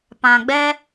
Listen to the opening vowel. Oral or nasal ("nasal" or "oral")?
nasal